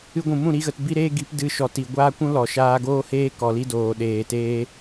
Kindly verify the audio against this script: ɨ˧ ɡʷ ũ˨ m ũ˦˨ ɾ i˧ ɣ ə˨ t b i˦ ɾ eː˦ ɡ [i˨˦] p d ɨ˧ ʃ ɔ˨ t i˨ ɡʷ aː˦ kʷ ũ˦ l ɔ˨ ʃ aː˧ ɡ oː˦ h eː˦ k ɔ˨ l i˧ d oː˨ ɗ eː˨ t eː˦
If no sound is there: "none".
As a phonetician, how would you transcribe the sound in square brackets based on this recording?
i˨˦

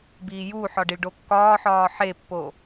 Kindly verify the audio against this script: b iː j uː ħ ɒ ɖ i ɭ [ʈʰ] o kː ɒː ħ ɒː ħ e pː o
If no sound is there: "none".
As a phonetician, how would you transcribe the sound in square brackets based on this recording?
ɖ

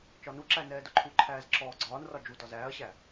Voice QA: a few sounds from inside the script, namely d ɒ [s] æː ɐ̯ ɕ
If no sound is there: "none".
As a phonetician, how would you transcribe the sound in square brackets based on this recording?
z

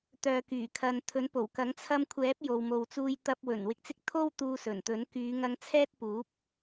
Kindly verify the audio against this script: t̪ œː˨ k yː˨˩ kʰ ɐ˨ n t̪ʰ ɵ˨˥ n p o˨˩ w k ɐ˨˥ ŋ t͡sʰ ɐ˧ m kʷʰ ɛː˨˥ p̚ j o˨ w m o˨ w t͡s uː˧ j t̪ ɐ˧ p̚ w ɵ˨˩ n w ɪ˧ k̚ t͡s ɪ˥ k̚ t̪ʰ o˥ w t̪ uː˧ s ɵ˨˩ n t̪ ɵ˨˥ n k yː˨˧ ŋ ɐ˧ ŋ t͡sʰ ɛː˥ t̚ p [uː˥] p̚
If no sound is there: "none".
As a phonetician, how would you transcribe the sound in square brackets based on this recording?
uː˨˥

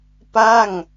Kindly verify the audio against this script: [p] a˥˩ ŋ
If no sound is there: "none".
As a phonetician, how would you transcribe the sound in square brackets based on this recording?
p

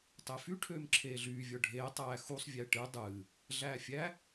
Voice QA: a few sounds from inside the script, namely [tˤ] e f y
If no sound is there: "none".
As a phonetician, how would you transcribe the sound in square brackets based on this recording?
tˤ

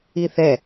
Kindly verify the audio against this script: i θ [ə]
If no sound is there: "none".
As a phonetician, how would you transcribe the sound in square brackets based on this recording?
ɛ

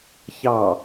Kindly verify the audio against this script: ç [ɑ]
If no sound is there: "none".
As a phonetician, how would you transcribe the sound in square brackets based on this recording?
ɑ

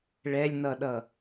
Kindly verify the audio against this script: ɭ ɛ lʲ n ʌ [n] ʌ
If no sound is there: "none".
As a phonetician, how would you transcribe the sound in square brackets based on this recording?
ɗ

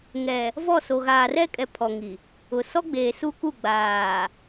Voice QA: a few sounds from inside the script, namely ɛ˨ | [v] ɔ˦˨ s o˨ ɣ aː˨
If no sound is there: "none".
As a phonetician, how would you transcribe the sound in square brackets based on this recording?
v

